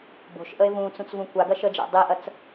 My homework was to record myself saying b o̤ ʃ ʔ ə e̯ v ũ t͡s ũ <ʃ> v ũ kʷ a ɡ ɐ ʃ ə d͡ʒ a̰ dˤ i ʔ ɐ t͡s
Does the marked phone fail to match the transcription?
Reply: yes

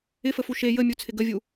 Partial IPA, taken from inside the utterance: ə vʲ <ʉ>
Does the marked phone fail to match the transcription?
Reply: yes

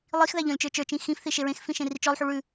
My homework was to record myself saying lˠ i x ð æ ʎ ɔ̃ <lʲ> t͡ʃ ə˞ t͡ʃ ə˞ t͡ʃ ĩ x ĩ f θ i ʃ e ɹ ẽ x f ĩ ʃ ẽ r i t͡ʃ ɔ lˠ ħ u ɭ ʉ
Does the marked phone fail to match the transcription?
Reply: no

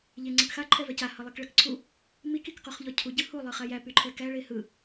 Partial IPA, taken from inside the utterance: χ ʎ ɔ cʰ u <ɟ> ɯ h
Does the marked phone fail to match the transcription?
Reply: no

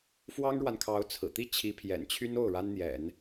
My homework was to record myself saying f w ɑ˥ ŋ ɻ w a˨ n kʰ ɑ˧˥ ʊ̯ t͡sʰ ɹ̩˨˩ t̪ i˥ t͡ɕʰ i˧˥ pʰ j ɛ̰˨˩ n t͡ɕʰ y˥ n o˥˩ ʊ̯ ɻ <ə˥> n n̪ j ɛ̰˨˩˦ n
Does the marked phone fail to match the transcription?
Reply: yes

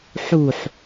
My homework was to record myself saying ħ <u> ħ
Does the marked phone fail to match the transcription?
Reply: no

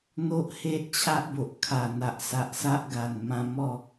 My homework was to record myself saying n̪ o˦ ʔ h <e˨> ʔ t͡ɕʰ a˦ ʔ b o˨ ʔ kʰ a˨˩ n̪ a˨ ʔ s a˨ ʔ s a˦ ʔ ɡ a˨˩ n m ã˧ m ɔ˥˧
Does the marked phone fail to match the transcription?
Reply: yes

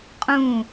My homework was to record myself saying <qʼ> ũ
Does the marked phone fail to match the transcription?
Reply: no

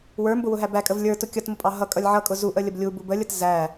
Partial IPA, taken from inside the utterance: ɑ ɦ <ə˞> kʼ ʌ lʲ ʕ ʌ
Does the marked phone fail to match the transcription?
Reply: yes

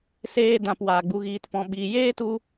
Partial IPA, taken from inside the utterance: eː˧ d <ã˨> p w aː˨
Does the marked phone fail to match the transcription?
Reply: no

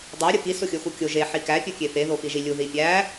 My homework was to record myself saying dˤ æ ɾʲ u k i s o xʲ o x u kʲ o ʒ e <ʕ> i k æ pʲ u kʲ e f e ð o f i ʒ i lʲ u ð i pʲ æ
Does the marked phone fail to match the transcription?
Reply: yes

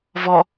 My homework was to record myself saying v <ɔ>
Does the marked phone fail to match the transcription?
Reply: no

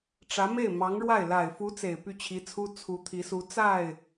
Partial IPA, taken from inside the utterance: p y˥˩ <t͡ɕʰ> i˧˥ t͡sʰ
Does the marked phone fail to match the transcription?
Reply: no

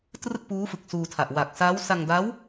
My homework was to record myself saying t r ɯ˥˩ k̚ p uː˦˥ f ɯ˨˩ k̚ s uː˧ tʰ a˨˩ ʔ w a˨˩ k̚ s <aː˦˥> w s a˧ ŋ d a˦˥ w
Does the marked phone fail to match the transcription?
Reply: no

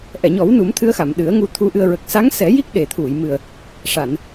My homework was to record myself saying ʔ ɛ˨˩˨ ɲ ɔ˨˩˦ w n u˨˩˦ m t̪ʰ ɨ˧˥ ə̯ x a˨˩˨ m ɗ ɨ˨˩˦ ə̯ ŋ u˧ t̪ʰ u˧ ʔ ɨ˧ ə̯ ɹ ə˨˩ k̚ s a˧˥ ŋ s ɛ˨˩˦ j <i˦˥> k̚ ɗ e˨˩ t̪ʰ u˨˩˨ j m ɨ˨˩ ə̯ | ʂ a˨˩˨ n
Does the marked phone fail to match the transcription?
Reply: no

